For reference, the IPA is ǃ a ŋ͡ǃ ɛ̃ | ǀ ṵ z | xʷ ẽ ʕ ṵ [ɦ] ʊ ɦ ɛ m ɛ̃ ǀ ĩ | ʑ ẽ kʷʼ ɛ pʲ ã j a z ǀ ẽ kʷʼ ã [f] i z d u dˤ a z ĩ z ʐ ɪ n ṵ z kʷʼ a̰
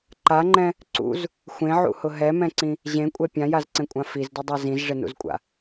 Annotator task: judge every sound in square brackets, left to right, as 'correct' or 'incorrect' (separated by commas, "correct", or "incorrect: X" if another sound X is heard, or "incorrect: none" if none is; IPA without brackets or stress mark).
incorrect: h, correct